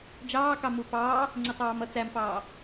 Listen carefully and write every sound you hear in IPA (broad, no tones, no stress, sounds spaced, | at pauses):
d͡ʒ ɑː k ɑ m u p ɑː | ŋ͡ǀ ɪ tˤ ɑː m ʌ t͡s æ m f ɑː